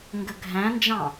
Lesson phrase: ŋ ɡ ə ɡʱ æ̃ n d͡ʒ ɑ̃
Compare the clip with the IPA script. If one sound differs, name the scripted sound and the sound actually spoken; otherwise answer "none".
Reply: none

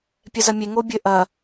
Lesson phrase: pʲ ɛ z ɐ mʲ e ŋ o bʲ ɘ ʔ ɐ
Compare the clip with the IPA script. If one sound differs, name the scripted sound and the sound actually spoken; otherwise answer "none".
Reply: none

